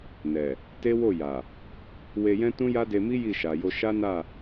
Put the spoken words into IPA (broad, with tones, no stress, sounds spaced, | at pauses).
n ɛ˨ | t e˦ w o˦˨ j a˨ | w e˧ j ɛ̃˦ t ũ˦ j a˦ d e˧ m i˦ j i˦˨ ʃ a˨ j o˧ ʃ a˦ n a˦˨